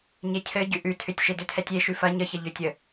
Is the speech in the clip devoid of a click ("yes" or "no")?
yes